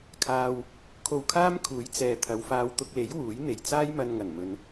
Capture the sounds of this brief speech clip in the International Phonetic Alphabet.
kʰ aː˧ w | kʰ o˧ w kʰ aː˥ m kʰ uː˨˥ j t͡s ɛː˨ t̪ʰ ɐ˨˧ w f aː˧ w t̪ ʊ˧ k̚ l e˨˥ j w uː˨˥ j n̪ e˨ j t͡s aː˥ j m ɐ˧ n ŋ ɐ˨˩ n m ɵ˧ n

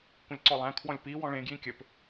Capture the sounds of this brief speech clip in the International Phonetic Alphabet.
kʷ ə̃ lʲ ǀ ɔ lˠ æ̃ kʰ w ɔ̃ lʲ p i w ɔ̃ ɭ ẽ ɡ j ĩ kʲ ɘ p

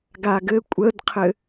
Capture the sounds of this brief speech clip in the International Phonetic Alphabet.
ɡ a ɡ ɘ kʷʼ ə d qʰ ɘ

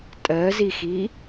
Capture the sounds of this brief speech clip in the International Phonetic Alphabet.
tʼ ɜ z i x i

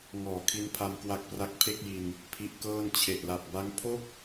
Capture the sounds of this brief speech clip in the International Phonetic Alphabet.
ŋ ɔː˨˩ kʰ i˦˥ n pʰ a˧ m k w a˦˥ k̚ p r a˦˥ k̚ pʰ e˥˩ k̚ j i˧ n | pʰ i˦˥ ʔ k ɤː˥˩ n t͡ɕʰ e˨˩ ʔ l a˨˩ p̚ b a˦˥ ŋ pʰ o˥˩ k̚

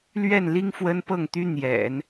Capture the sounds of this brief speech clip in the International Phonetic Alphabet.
l ɥ ɛ˥˩ n l i˥ ŋ f w ə˥ n p ɤ˥˩ ŋ t̪ y˥ n̪ j ɛ̰˨˩˦ n

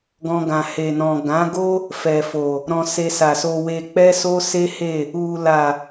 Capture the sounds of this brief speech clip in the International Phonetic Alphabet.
ɡ ɔ̃˦ ɡ ã˧ h e˨ n ɔ̃˨ ɡ ã˨˦ ɡ o˦ | f ɛ˨ f o˨ | ɾ ɔ̃˧ s e˧ s a˨ s o˧ w e˧ k͡p ɛ˦ s o˦ s e˦ h e˦˨ | u˧ l a˨

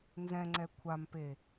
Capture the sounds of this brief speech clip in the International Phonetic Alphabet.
n z ɛ̃ ŋ͡ǀ ɛ kʷʰ a m p e

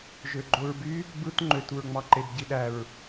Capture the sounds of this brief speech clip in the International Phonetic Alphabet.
ʒ ø ɡ͡ǃ o ɹ b y | b ɯ t ŋ͡ǃ ø t u ɹ ŋ͡m ɑ ǃ e b ɟ i ɗ æ ɹ

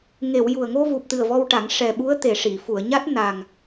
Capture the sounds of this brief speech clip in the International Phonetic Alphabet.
ŋ e˨˩˨ w j u˨˩ ə̯ ŋ o˧ v u˨˩ p̚ t̪ ɨ˨˩ ə̯ v ɔ˧ w ʈ a˨˩˦ ŋ ʂ ɛ˨˩ ɓ u˧˥ ə̯ t̪ e˨˩ ʂ i˨˩˨ f u˨˩˨ ə̯ ɲ a˦˥ t̚ n a˨˩ ŋ

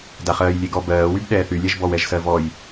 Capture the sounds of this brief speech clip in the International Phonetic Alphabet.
d a χ ɜː j lʲ e ɡ ɔ b ɜː w y b ɗ ɛː θ y lʲ ɛ ʒ b ɔ w ɛ ʒ s ɜ v ɔ j

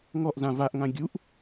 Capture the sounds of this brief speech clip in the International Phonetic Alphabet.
ŋ ɔ ʔ z ã v a ʔ ŋ ã ɡʲ u ʔ

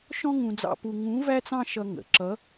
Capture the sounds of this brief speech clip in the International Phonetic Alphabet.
ʃ ɔ̃˥ ŋ ũ˧ d͡z ɑ̰˧ p u˧ ŋ ũ˧˥ v æ˥ t͡s ɑ̃˥ ʃ ʌ˧ ŋ ə̰˩ ǁ ʌ˧˥

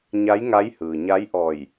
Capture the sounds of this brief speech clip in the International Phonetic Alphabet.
ɲ a˧˥ j ŋ a˧˥ j h ɯː˩ ɲ a˧˥ j ʔ ɔː˧˩ j

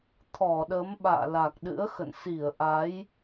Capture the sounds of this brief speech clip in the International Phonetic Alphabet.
t̪ʰ ɔ˧˩ ɗ ə˨˦ m ɓ a̰ː˧˨ l a˨˩ k̚ ɗ ɨ̰˧˥ ə̯ x ə̰˧˨ n s i˧˩ ə̯ ʔ a˨˦ j

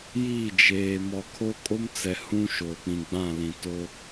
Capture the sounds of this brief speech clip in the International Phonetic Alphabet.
j i˦˨ d͡ʒ eː˨ m ɔ˨ kʰ o˦ kʼ o˦ m t͡s ɛ˨ h ũ˦ ʃ oː˨ k͡p ĩ˨ ɡ͡b ã˦˨ l ĩ˨ t o˦

